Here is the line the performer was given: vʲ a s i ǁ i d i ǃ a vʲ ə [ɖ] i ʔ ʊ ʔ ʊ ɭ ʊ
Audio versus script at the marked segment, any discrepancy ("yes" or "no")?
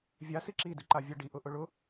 no